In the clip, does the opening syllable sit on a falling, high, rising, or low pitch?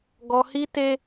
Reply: high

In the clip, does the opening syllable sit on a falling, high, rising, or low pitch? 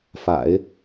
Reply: low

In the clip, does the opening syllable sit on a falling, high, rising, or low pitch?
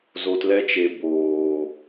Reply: low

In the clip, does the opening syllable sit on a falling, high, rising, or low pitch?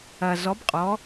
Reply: low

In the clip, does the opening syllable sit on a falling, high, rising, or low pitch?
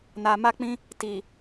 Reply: low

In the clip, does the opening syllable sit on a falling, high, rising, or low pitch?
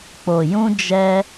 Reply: low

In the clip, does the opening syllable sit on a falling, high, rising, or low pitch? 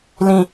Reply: low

